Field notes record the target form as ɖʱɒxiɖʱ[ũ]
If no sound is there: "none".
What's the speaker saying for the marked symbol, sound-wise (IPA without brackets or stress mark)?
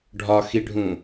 ũ